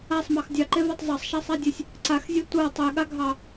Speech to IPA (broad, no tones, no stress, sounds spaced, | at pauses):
a sˤ m ɑ x dʲ ɑ ǃ e v a tˤ zˤ ɑ sˤ ʃ a sˤ a dʲ e sʲ | ǀ a x zʲ e tʷ a tˤ e ɠ a ɡʱ ɑ